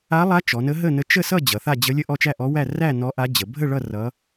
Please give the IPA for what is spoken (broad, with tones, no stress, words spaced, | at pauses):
a˧˥lˠa˧˥ t͡ʃɔ˩˧nə˧˥ɦə˥˨nə˧˥ t͡ʃə˥˨sʌ˥˨ d͡ʑʌ˩˧θa˥˨d͡ʑə˧˥lʲə˥˨ ʔɔ˥˨t͡ʃæ˥˨ʔɔ˧˥wæ˥˨ ræ˥˨ nɔ˧˥ʔa˧˥d͡ʑə˩˧ bʱə˥˨ɭʌ˥˨ rʌ˧˥